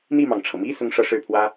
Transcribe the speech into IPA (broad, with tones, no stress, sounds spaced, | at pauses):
n̪ i˥˩ m ɑ˩ ŋ ʈ͡ʂʰ ɤ˩ m i˥ s ʊ˥ ŋ ʂ ɤ˥ ʂ ɻ̩˥˩ pʰ w ä˥